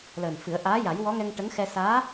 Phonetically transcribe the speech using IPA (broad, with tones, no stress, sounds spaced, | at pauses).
l əː˨˩ n f ɨ˨˩˦ ə̯ ʔ aː˧˥ j a˨˩˦ j w ɔ˧˥ ŋ ɛ˧ ŋ ʈ ə˧˥ ŋ x ɛ˧ s aː˧˥